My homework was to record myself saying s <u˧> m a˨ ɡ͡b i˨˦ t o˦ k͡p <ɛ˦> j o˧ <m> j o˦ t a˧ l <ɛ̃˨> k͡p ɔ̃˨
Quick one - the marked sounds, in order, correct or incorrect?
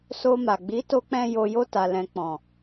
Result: incorrect, incorrect, incorrect, incorrect

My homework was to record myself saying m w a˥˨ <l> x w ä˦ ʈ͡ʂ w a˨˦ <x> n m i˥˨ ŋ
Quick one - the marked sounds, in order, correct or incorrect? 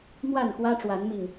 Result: incorrect, incorrect

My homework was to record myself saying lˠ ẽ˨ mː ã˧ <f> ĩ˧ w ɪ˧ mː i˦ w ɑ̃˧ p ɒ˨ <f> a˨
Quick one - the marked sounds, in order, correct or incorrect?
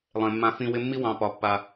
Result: correct, incorrect

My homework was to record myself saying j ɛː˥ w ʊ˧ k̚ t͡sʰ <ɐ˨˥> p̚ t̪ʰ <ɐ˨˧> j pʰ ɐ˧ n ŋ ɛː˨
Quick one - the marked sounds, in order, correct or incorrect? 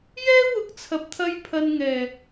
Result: incorrect, incorrect

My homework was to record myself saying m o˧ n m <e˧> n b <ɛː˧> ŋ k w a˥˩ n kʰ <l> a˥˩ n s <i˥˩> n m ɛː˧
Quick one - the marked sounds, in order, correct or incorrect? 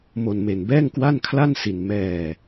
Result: correct, incorrect, correct, incorrect

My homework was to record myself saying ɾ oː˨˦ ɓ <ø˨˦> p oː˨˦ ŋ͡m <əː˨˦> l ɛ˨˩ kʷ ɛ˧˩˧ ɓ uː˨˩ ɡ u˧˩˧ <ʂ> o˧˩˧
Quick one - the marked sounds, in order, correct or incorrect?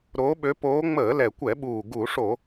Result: correct, incorrect, correct

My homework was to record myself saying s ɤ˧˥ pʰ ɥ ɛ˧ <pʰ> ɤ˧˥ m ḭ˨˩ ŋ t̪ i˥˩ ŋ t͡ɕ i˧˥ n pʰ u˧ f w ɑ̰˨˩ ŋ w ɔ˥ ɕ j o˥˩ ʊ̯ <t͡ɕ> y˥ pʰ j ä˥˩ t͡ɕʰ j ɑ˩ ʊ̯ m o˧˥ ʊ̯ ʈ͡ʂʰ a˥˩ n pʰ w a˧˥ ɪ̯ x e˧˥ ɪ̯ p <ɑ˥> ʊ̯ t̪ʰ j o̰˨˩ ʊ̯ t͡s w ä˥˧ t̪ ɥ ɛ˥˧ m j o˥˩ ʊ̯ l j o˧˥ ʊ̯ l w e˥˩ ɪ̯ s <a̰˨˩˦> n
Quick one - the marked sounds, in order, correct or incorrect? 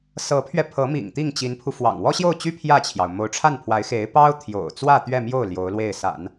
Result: correct, correct, correct, correct

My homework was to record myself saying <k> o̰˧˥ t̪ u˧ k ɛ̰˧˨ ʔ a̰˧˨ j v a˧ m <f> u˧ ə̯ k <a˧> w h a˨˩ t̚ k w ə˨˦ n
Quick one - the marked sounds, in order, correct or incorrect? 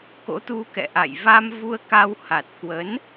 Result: correct, incorrect, correct

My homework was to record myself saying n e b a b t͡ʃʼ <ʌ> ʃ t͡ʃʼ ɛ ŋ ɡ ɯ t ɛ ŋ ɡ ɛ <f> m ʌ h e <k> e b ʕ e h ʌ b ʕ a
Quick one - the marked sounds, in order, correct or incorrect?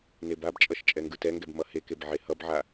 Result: correct, incorrect, correct

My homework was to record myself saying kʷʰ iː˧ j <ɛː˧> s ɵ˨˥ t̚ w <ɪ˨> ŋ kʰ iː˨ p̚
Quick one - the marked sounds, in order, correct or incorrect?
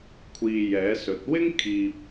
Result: incorrect, incorrect

